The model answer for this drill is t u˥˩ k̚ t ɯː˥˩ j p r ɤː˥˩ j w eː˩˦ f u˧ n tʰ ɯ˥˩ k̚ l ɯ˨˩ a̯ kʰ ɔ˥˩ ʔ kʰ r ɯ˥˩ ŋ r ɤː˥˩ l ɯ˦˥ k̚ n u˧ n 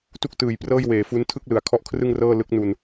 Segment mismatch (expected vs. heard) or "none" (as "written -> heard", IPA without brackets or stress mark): ɯː˥˩ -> ɯː˨˩